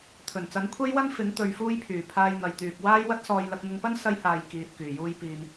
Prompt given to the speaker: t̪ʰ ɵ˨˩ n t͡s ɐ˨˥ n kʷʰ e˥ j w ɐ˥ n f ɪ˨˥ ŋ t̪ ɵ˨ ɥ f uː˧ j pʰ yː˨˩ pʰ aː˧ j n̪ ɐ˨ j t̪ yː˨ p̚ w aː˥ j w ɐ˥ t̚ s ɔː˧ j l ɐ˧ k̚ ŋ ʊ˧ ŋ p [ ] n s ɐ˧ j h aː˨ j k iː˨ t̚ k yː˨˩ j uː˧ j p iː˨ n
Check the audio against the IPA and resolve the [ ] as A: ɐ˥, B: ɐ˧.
A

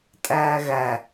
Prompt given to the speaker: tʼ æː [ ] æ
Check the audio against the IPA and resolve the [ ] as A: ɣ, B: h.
A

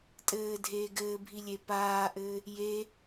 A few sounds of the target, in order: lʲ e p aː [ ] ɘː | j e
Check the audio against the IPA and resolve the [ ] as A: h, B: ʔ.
B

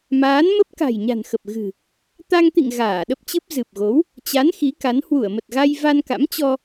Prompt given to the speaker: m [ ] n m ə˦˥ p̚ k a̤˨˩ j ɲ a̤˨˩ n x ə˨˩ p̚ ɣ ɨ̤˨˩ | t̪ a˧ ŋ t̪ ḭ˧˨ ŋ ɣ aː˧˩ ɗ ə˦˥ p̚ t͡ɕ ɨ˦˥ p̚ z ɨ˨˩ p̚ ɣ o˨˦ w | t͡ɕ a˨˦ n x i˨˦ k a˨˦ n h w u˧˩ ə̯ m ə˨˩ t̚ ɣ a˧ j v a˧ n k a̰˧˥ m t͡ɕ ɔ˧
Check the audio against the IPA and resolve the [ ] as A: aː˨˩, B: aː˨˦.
B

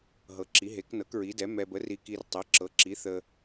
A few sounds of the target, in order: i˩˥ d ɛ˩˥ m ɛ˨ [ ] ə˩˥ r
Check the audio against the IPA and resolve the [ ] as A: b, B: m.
A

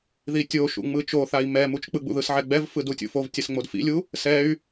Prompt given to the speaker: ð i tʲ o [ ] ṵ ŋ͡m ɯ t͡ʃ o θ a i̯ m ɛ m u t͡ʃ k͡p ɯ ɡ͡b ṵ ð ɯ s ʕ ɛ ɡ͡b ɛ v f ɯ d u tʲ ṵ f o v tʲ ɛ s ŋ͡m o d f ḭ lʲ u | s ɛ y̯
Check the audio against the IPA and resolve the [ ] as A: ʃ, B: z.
A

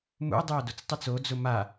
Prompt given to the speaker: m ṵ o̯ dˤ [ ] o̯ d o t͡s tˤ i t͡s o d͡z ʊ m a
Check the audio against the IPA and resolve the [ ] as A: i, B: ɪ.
B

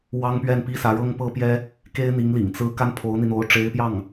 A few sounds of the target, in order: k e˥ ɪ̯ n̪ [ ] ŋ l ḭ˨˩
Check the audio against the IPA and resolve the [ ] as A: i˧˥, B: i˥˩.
A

